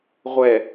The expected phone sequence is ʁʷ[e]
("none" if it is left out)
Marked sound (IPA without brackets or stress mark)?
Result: ɛ